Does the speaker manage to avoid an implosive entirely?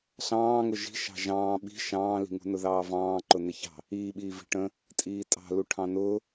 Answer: no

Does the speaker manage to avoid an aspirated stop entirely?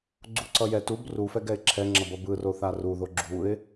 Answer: no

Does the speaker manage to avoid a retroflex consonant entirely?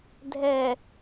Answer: yes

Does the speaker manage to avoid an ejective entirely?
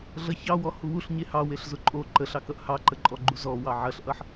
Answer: no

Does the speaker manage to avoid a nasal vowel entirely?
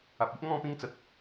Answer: no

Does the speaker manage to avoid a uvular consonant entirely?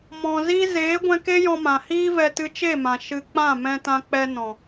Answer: yes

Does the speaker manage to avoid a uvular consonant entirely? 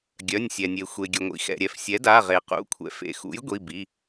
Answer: no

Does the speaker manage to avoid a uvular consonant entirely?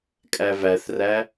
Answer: yes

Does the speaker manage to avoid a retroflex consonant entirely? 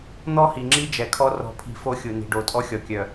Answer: no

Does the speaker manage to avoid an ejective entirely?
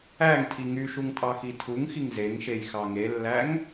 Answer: no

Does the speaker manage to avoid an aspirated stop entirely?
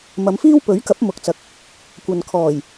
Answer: no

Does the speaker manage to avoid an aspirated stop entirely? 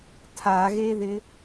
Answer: no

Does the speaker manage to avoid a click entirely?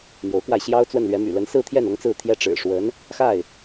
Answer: yes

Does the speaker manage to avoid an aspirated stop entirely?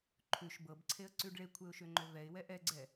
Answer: no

